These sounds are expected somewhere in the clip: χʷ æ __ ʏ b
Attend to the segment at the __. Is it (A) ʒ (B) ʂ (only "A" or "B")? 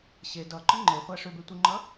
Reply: B